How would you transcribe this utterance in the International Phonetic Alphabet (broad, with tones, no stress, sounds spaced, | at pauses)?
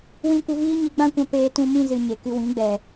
w ĩ˧ kʷ ə˧ v iː˦ ɲ i˧ ɡ͡b ã˦ kʷ ã˧ p eː˧ t ũ˧ m ĩ˦ z ɨ˨ ɲ e˨ k ɨ˧ w ĩ˨˦ ɡ͡b ɛ˨